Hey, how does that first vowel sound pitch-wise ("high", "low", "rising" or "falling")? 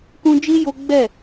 high